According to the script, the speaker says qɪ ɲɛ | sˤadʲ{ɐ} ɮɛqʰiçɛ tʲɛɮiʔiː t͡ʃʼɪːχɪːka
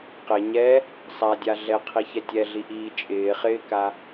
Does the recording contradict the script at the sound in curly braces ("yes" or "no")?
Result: yes